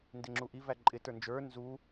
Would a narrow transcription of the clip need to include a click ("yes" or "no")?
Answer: yes